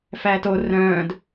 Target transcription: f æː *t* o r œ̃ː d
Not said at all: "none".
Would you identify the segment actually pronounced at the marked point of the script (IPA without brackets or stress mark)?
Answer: t